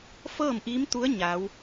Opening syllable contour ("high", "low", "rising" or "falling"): falling